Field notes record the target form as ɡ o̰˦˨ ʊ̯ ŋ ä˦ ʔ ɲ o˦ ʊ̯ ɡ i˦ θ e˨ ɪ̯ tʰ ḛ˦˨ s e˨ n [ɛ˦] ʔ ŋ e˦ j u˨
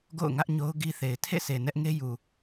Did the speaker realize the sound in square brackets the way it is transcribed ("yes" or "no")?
yes